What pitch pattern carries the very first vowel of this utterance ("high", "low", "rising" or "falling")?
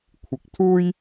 rising